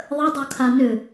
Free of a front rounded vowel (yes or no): no